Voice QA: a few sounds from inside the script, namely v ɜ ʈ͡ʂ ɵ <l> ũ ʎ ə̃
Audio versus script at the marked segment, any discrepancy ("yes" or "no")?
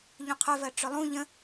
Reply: yes